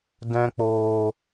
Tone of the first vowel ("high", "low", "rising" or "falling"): high